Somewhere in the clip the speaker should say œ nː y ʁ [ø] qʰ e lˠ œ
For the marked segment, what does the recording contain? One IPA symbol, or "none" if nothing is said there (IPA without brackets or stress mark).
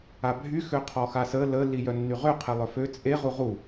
ø